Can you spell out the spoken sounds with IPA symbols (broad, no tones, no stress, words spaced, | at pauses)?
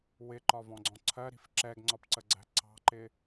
wɪǃɒvɔ̃ɡ͡ǀɔ̃ ǀʰɜɾi̤f ǁɛɡŋ͡ǀɒpǀəɡ͡ǀæ̤ ǀɑ̤ǃɪ